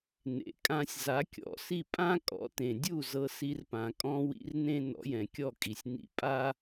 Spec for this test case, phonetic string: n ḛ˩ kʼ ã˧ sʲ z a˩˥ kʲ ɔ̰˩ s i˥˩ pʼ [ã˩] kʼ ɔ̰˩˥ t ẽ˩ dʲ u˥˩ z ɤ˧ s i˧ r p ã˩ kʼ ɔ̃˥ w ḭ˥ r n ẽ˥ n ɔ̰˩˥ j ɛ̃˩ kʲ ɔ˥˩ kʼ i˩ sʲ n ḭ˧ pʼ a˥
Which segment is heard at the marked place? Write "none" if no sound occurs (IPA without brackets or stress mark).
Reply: ã˥